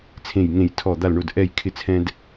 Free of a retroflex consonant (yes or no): no